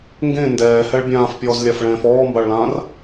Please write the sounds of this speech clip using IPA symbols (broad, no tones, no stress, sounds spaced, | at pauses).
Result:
ŋ ɡ ẽ n d ɛː h ɛ ɭ bʲ ãː f pʲ ɔː z lʲ a f ɭ ɛ̃ː f ɔː m b a ɭ l ãː r